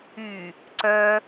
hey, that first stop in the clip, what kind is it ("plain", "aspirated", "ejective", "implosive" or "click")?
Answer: click